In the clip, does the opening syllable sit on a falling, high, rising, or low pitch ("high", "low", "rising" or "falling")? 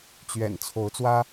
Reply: low